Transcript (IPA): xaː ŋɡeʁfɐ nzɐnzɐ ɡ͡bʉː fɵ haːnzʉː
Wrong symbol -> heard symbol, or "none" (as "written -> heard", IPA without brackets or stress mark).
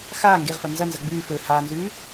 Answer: none